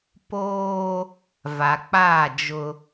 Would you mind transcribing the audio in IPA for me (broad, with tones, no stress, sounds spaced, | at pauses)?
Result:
p oː˦ | v a˨ k͡p a˦˨ d͡ʒ ʊ˦